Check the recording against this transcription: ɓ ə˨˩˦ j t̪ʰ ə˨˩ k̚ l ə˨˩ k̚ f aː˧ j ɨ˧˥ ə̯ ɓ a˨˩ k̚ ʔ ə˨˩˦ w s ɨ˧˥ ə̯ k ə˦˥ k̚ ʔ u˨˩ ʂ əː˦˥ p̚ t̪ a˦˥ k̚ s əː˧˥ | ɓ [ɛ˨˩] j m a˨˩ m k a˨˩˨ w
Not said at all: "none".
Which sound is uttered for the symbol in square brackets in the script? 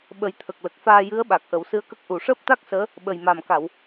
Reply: ə˨˩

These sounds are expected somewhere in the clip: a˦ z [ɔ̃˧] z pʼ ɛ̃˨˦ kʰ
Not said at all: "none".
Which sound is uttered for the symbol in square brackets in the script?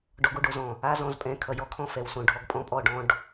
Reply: ɔ̃˧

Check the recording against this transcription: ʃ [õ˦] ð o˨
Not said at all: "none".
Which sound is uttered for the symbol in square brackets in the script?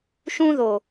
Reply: ũ˦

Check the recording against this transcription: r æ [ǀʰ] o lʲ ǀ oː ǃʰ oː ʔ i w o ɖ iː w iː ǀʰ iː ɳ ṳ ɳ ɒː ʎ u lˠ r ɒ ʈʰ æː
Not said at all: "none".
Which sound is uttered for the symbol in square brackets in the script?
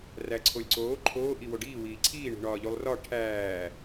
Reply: ǀʰ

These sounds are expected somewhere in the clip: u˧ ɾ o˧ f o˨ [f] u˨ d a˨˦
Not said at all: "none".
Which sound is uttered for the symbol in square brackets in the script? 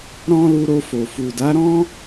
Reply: f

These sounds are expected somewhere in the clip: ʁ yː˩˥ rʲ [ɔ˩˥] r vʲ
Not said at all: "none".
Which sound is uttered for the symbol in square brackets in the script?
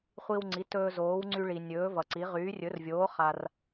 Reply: ɵ˩˥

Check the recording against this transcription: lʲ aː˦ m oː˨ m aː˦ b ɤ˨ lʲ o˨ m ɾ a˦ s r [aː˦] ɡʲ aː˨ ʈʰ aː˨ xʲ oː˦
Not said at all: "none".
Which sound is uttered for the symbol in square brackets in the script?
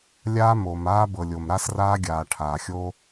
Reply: aː˦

